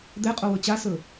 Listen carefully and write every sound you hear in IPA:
d̪ ɛ qʼ o w ɵ t͡ɕ a s ɵ

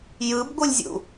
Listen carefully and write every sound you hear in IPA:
j ɯ b ɡʷ ɯ lʲ zʲ ṵ

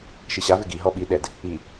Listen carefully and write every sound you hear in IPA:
ʃ i ɕ a v ɪ ɡ i ɦ ɔ ɓ i ɗ ɛ d | i

